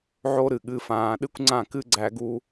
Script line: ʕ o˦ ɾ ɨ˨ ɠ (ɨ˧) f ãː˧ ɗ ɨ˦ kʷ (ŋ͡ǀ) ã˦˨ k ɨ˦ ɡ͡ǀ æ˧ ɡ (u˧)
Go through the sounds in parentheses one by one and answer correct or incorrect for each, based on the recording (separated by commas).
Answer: correct, correct, correct